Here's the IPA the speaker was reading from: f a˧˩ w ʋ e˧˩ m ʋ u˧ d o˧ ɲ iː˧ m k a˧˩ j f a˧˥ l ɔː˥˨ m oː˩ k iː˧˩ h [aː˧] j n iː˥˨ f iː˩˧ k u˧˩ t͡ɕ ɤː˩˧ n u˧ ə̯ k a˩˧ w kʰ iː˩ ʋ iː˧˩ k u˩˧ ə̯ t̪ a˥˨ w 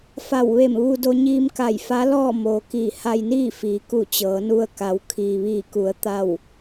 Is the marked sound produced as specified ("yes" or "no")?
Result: no